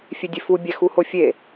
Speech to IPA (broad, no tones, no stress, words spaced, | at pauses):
fʲedʲefu bʲæxuhofʲe